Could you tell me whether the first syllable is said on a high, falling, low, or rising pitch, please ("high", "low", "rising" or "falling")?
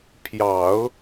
low